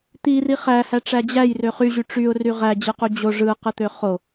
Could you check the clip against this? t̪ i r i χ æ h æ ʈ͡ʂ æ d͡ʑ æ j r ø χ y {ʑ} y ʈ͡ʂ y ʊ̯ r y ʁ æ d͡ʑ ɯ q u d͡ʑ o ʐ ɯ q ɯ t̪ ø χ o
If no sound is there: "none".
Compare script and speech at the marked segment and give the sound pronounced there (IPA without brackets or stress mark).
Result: ʑ